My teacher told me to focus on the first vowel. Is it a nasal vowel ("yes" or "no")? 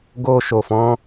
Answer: no